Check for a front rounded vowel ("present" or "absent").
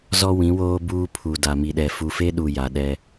absent